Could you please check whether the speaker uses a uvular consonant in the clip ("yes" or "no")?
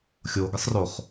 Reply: yes